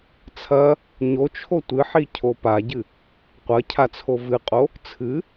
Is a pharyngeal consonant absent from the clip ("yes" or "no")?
no